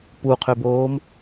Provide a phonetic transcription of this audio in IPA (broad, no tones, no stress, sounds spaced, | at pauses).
p u qʰ ø b oː m